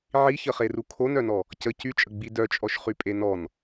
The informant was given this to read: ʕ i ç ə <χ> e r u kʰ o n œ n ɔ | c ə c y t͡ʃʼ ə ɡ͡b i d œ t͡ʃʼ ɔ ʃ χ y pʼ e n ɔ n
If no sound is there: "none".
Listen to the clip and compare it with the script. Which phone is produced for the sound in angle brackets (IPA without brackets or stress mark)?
χ